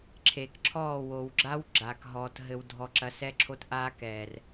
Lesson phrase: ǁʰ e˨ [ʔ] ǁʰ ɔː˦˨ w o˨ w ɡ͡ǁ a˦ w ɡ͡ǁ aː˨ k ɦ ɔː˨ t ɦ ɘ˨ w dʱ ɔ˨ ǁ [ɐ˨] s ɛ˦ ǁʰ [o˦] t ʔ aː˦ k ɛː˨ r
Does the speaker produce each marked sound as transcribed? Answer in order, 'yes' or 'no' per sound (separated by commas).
no, yes, yes